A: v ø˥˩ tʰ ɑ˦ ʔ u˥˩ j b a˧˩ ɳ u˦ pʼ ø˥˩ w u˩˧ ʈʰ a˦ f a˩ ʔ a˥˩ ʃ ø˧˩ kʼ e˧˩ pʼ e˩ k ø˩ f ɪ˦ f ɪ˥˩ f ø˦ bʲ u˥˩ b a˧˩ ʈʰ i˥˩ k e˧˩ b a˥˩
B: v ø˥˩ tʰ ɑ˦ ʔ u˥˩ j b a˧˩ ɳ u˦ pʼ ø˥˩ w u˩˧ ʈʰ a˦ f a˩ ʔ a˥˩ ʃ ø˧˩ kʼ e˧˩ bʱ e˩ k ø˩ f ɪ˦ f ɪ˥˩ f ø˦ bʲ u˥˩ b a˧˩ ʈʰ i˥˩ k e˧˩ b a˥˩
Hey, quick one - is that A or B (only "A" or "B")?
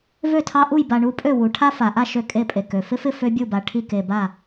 A